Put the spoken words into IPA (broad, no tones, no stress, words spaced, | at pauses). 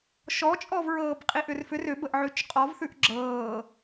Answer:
ʃɔt͡ʃʼɔvɹɤːb qʼiʔʏrfʏr ʏbəʔ ʕʉt͡ʃqʼɔvθʉʔ ɡ͡ǁɤː